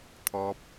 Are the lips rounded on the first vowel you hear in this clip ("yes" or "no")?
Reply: yes